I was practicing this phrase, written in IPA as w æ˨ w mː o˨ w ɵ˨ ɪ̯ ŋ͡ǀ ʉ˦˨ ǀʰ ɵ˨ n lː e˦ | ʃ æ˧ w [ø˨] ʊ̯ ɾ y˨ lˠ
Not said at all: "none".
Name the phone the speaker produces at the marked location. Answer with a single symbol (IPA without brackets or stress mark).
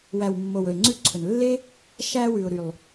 ʉ˨